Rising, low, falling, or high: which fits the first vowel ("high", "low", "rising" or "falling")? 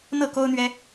falling